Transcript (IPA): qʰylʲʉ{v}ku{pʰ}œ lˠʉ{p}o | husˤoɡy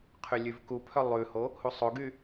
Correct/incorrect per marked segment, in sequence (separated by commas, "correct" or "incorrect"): correct, correct, incorrect